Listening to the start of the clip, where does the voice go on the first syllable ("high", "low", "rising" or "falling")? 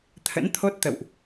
rising